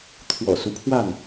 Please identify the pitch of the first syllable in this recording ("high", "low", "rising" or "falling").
low